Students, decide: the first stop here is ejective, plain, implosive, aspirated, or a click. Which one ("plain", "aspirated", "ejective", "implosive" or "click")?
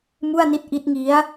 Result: plain